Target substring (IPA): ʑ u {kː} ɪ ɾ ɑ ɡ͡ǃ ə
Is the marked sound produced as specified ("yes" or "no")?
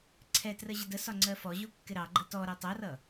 yes